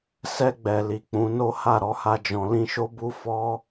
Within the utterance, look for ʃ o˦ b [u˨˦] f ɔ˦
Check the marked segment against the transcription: incorrect: u˦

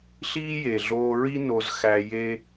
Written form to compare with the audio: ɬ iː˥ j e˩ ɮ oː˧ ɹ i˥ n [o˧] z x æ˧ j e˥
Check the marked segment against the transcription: correct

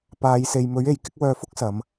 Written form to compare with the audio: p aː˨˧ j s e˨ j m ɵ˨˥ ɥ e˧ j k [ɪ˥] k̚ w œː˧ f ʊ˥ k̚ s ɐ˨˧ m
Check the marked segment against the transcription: correct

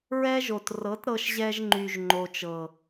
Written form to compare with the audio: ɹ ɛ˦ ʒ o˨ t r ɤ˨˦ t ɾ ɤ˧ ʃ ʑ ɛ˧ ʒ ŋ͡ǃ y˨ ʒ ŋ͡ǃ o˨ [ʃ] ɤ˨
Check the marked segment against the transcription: incorrect: t͡ʃ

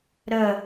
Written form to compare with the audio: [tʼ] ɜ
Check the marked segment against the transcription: incorrect: ɾ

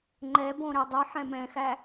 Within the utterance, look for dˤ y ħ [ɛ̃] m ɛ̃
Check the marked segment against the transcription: correct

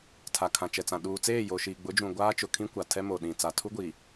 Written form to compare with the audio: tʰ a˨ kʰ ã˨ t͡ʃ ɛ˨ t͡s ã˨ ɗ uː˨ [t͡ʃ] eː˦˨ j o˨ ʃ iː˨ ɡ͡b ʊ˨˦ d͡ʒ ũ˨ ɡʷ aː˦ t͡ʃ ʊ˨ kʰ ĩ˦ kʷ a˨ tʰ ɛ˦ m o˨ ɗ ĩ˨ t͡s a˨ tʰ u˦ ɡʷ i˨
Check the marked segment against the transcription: incorrect: t͡s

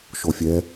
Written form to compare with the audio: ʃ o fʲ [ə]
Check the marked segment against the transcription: incorrect: ɛ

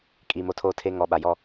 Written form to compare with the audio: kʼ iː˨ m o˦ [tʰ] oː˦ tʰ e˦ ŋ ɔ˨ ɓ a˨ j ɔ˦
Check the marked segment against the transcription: correct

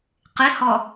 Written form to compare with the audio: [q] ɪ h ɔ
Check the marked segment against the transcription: correct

